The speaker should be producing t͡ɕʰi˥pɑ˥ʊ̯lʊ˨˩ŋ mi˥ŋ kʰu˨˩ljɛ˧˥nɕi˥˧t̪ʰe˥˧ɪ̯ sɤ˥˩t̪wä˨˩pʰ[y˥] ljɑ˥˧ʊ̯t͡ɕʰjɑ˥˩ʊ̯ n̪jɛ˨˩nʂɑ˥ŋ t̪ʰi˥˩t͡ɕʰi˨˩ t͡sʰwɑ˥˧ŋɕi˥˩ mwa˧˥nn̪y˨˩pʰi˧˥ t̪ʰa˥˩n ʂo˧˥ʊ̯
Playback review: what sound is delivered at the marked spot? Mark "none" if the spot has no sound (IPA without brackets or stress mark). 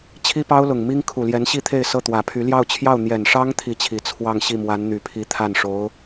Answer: y˧˥